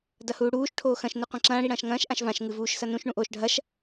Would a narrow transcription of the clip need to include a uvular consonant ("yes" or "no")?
yes